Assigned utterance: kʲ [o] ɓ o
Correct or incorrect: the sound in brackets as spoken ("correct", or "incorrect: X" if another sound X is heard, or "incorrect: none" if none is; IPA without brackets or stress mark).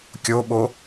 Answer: correct